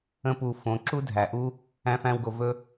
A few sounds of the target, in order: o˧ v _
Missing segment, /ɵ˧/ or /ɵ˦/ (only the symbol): ɵ˦